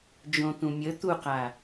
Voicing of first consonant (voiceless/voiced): voiced